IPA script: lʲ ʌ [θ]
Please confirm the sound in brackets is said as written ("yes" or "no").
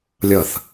yes